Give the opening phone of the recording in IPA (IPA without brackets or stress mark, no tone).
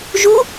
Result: ʒ